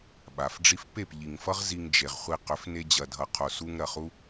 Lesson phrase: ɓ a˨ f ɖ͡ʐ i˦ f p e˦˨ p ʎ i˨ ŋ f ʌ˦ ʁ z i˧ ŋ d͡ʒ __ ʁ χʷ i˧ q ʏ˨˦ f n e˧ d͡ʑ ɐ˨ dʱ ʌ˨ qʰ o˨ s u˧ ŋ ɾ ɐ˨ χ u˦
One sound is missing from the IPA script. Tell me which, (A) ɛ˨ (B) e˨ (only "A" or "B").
B